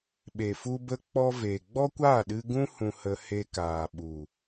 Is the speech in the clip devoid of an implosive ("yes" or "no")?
no